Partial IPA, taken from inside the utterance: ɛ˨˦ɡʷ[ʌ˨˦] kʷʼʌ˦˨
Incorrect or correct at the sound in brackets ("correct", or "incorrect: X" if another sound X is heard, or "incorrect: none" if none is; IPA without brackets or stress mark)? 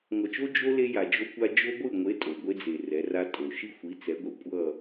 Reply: incorrect: ʌ˨